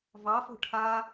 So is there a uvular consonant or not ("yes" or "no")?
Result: no